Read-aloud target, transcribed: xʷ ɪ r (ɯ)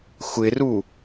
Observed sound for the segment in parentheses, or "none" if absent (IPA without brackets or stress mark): u